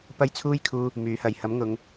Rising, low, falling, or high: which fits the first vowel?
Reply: high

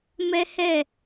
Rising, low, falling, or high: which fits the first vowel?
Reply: high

